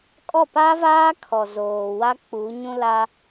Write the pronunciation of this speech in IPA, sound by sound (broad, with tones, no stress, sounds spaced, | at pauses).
kʼ ɔ˦˨ p a˦ v aː˦ kʰ ɔ˨ z oː˨ w a˦ k͡p uː˨˦ ɲ ũ˦ l a˦